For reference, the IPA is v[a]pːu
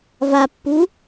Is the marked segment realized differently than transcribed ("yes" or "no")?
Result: no